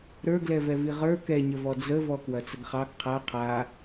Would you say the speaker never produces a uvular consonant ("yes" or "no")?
no